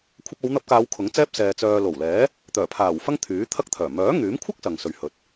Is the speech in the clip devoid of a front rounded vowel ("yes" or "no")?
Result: no